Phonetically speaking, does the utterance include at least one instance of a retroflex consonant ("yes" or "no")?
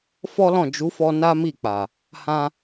no